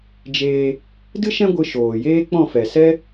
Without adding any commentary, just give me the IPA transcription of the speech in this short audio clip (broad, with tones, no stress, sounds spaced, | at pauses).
d͡ʒ eː˧ | d ɨ˦ ʃ ɛ̃˦ ɡʷ ɨ˧ ʃ oː˨ j eː˦ k͡p ɔ̃˦˨ f ɛ˨ s ɛ˦